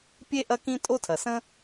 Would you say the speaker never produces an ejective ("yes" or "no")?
no